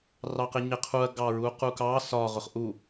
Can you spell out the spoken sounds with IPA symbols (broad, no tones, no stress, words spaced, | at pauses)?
rɑqɪɲɪqʰuɐ̯ ɡɑɹuqukɑ sɒ ʁʊχʔu